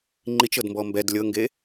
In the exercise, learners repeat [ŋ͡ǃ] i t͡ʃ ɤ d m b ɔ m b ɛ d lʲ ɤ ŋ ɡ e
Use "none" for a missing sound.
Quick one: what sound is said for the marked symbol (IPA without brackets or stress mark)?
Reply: ŋ͡ǃ